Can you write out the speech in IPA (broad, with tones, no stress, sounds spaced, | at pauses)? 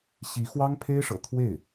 ɕ i˧˥ x w ɑ˥ ŋ pʰ e˥ ɪ̯ ʂ ɤ̰˨˩ t̪ʰ w e˥˩ ɪ̯